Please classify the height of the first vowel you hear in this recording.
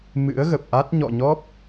high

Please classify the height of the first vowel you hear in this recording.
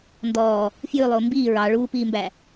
mid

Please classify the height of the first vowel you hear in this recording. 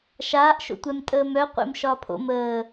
low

